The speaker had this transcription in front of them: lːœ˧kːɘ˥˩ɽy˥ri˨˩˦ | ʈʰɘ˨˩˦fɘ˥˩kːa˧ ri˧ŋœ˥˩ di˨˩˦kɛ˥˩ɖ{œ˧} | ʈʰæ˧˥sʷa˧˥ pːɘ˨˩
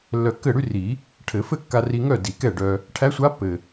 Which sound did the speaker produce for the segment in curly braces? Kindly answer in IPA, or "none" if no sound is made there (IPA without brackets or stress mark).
œ˧